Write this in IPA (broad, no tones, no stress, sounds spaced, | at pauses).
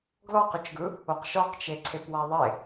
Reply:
ɡ l ɔ q ʏ t͡ʃ ɡ ɯ | o q ʃ ɔ q t͡ʃ e ǀʰ e p w a ðˤ e